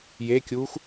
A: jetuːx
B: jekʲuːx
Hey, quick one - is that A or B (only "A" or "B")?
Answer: B